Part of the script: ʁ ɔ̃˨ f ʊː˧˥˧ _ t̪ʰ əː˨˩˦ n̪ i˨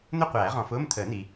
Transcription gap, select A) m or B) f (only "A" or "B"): A